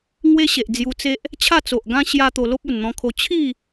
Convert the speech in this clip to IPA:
ŋ w e˦ ɕ e˨ ʔ d͡z j u˧ t͡s e˦ ʔ | t͡ɕʰ a˥˧ t͡s o˨ ʔ ɡ ã˦ ɕ j a˦ t̪ o˧ l o˦ p̚ u˨˩ n n̪ ɔ̃˧ kʰ o˧ t͡ɕʰ i˥˧

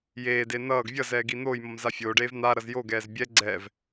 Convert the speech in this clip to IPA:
j eː d e n ʌː ɡ vʲ ʌ z ɛː ɡ i n̪ oː j m ʌ m z a fʲ oː ɖ eː v n̪ a ɾ ʌ z j o ɡ ɛː z bʲ ɛ ɡ͡ǀ ɛ v

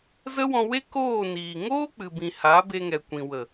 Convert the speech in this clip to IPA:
z ə˦ w ɔ̃˧ w e˦ k oː˦˨ n iː˨ ŋ oː˦ k͡p ɨ˨ b ĩ˨ h a˨˦ b e˧ ŋ ɛ˨ kʷ ĩ˨ w ə˨

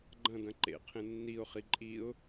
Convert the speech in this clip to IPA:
ɡ͡ǃ ɐ̃ d ɐ̃ ǃ ḛ qʰ ẽ nː i ʊ̯ χ i ǃʼ i ʊ̯

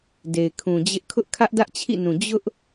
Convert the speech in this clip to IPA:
d e˨ ɪ̯ kʰ ũ˨ d͡ʑ ɪ˦ ʔ kʰ ʊ˦ ʔ kʰ ä˦ ʔ d ä˦ ʔ t͡ɕʰ ḭ˦˨ n ũ˨ d͡ʑ ʊ˦ ʔ

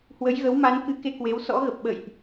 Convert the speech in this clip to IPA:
h w ə˨˦ j ɣ ə˨˦ w m a˨˦ n k ɨ˨˦ k e˧ k w e˨˦ w s ɔ̰˧˥ ɣ ə˨˩ p̚ ɓ ə̰˧˨ j ʔ

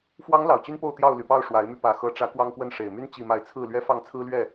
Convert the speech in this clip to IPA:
f w ɑ˨˦ ŋ l ɑ˨˩ ʊ̯ t͡ɕ y˦ n p o˥˨ ʊ̯ t̪ j ɑ˥˨ ʊ̯ l y˨˩ p ɑ˥˨ ʊ̯ ʂ w a˨˦ ɪ̯ m y˧ p ä˨˩ x ɤ˨˦ ʈ͡ʂ ä˨˦ k w ɑ˦ ŋ k w ə˥˨ n ʂ e˨˩ ɪ̯ m y˦ n t͡ɕ i˥˨ m a˥˨ ɪ̯ t͡sʰ ɹ̩˥˨ l ɥ ɛ˦ f ɑ˥˨ ŋ t͡sʰ ɹ̩˦ l ɥ ɛ˥˨

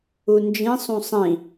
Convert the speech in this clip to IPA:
u n d͡ʒ ĩ sˤ ũ sˤ ĩ

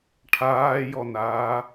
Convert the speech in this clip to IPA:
ʈʰ aː j ɔ n aː

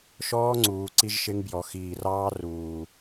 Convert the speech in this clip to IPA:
ʃ ɔː˦ ŋ͡ǀ uː˨ ǀ i˦ ʒ ʃ ɪ˦ ŋ b j ɔ˨ x iː˨ r ɑː˦ r uː˨

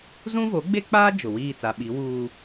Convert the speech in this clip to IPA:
z ũ˦ v o˨˦ ɡ͡b e˦ k͡p aː˦ d͡ʒ ʊ˨ w iː˦˨ t͡s a˨ ɓ i˨˦ w uː˦

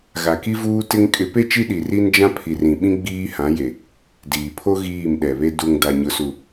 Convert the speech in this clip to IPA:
ɣ a˨ k i˦ v uː˦ t ɪ˦ ŋ kʼ ɪ˨˦ p e˦ t͡ʃ i˦ ɗ i˨ r i˦ n d͡ʒ ã˦ pʰ i˨ r ĩ˨ ɓ ĩ˦ ɡ͡b iː˦ h ã˨˦ j e˨ | d iː˨ pʰ o˦ ɣ iː˦˨ m ɗ ɛ˨ β e˦ d u˨ ŋ d a˨ ɲ ʊ˨ s u˨

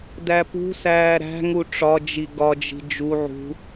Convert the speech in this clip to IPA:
d æ p ṳ s æː ɾ æ̤ ŋ u ʈ͡ʂ ɒ d͡ʒ i ɡ ɒ d͡ʒ i̤ d͡ʒ u ʕ ṳ

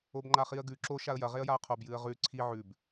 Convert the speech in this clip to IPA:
o b ŋ͡ǃ a χ i ə̯ ɡ ʉ ǁ o ʃ a ə̯ j ɐ ʁ e ə̯ j a ə̯ qʰ o b j ɨ ə̯ ʁ ʉ ǀʰ i ʕ ʉ b

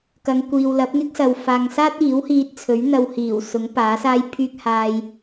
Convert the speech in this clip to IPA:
k ɐ˨˧ ŋ kʷ iː˨ w l ɐ˨˥ p̚ ŋ ɪ˥ k̚ s ɐ˨ w f aː˨ ŋ s aː˥ t̚ iː˨˥ w h iː˧ t̚ t͡sʰ ɵ˨˥ ɥ n̪ ɐ˧ w h iː˨˩ w s ʊ˨˥ ŋ p aː˨˥ s aː˥ j pʰ yː˥ k̚ h aː˧ j

